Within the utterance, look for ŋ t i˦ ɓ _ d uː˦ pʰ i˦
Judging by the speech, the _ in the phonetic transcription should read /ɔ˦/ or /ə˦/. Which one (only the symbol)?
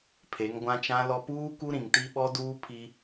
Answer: ɔ˦